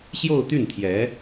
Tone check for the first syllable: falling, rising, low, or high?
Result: falling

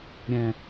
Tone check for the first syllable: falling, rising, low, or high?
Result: low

